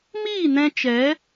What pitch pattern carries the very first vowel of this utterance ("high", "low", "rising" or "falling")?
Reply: falling